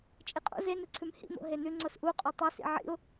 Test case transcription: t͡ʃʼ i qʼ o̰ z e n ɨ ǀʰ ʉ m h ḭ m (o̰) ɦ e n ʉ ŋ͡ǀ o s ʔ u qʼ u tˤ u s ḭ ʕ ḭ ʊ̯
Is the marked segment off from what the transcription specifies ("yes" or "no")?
no